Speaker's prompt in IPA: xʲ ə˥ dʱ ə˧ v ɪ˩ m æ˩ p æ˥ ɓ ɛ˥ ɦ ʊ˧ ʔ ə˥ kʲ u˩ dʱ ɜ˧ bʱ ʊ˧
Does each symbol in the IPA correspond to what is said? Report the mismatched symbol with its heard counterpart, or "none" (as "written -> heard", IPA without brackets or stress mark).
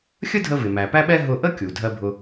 none